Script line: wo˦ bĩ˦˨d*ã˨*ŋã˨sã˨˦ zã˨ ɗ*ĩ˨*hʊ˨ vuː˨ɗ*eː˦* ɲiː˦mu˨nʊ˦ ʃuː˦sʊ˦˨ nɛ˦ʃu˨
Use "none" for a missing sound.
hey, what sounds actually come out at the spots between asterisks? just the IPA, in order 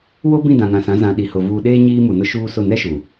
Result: ã˨, i˨, eː˦

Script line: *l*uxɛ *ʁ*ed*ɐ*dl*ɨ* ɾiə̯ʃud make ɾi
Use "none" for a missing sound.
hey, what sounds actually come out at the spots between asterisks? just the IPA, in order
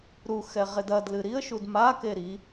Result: ɾ, ʁ, ɐ, ɨ

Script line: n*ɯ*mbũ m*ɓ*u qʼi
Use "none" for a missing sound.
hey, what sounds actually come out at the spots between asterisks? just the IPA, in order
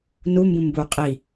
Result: u, b

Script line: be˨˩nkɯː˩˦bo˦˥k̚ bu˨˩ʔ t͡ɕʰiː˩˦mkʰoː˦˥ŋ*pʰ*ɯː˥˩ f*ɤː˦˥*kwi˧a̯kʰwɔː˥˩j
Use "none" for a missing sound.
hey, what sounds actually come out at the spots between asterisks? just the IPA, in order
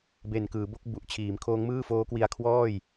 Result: m, oː˦˥

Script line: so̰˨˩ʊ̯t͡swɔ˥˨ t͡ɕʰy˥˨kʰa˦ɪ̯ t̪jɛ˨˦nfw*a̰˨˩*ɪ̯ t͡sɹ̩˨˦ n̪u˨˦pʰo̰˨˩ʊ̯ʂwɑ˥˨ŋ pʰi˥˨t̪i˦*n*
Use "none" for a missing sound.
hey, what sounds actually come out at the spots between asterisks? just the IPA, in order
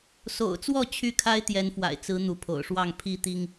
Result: a̰˨˩, ŋ

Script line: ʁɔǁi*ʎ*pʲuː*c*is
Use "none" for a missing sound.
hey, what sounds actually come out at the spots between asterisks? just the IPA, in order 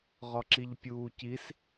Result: ʎ, c

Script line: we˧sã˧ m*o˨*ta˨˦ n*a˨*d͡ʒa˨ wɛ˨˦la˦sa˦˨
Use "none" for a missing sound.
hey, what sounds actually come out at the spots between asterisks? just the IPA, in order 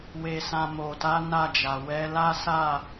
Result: o˨, a˦˨

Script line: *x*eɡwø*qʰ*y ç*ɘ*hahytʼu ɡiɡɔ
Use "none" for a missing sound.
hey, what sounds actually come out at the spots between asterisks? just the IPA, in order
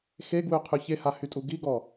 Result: x, qʰ, e

